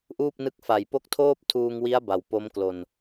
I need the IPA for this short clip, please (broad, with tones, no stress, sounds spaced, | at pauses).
ʔ uː˥˩ p̚ n ɯ˦˥ k̚ f a˨˩ j p o˦˥ k̚ tʰ oː˥˩ p̚ tʰ uː˧ ŋ w i˦˥ a̯ b a˨˩ w p o˦˥ m k l o˧ n